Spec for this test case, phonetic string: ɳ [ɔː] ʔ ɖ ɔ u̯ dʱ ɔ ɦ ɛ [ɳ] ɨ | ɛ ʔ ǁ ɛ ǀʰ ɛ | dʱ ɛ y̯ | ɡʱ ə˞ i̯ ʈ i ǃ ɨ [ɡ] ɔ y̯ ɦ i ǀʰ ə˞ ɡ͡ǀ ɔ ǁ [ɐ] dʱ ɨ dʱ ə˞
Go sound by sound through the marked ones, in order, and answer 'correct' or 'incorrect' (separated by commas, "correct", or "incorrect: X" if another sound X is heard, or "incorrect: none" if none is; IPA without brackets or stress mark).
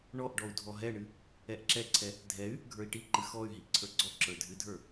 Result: incorrect: ɔ, correct, incorrect: x, incorrect: ə˞